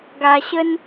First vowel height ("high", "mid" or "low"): low